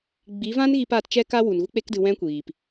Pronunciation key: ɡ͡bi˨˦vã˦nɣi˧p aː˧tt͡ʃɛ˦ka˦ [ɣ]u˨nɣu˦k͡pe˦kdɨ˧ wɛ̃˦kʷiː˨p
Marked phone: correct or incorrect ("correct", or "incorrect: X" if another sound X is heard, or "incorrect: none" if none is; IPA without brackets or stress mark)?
incorrect: w